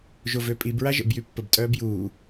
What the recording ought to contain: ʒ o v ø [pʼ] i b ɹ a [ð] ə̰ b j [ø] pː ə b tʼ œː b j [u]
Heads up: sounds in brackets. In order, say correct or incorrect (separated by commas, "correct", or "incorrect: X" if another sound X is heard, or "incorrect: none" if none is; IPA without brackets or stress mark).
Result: correct, incorrect: ʒ, incorrect: y, incorrect: uː